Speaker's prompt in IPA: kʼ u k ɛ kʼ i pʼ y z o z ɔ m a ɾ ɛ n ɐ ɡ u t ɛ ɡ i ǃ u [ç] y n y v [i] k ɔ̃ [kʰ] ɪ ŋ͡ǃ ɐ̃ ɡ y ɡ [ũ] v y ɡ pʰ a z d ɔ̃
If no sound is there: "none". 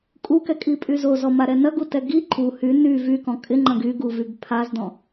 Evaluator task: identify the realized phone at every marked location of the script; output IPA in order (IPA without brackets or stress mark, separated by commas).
h, y, kʼ, u